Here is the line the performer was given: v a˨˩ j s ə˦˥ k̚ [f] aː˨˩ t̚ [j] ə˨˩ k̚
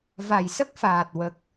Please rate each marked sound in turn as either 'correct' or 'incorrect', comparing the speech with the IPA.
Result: correct, incorrect

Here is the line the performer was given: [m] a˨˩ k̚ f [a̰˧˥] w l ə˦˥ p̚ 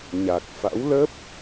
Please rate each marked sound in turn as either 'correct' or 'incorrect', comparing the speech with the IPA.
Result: incorrect, correct

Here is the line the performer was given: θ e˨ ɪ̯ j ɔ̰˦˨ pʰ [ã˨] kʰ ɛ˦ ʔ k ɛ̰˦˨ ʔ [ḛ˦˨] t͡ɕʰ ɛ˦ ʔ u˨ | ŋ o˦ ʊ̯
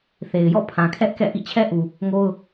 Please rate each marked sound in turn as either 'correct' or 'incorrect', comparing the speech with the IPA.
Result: correct, incorrect

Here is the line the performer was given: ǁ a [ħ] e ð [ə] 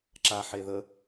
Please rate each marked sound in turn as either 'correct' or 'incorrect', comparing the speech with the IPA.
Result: correct, correct

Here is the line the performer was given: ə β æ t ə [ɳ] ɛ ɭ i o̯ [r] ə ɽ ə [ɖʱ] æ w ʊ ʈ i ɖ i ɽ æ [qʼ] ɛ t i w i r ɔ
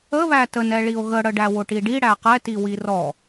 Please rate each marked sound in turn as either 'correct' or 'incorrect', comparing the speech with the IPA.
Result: incorrect, incorrect, incorrect, incorrect

